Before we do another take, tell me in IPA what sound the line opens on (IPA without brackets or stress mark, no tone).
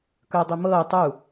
k